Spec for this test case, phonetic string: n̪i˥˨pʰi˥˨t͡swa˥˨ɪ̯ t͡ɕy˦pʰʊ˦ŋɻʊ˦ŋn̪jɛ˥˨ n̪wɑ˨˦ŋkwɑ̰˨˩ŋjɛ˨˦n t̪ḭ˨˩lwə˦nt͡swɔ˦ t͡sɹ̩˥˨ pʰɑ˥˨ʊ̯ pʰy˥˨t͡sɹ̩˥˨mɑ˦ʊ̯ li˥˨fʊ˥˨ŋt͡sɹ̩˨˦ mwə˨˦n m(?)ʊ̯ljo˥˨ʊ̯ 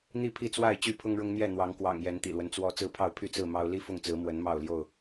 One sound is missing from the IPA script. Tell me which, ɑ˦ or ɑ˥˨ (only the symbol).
ɑ˥˨